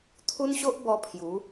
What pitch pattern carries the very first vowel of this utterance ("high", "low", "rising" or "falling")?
high